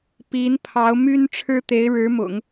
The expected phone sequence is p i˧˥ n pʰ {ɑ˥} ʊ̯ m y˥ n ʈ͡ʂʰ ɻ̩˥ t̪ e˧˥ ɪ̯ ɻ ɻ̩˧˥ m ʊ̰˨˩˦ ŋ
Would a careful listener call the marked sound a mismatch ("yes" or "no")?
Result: yes